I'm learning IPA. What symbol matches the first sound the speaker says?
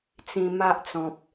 t͡s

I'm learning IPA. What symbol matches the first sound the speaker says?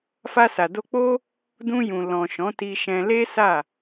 f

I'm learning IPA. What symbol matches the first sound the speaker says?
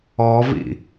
ɔ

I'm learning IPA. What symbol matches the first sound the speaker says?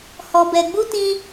h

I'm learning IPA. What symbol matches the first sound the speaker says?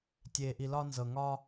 tʲ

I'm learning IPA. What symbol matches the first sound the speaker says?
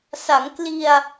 s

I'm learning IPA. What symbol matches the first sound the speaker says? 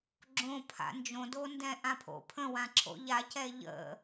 ɡ͡ǁ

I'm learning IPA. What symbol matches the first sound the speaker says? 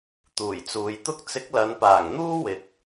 t̪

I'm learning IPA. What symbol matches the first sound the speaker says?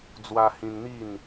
d͡z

